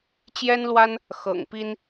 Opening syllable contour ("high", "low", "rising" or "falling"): high